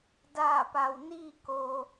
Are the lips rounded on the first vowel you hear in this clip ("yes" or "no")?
no